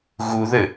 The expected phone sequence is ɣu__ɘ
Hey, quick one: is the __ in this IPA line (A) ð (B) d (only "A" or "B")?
A